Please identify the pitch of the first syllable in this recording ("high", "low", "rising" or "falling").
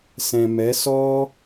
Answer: low